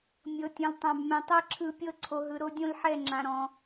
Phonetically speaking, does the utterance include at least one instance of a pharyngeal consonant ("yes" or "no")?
yes